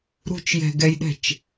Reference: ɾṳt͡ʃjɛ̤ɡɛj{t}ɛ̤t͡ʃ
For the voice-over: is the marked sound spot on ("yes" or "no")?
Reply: no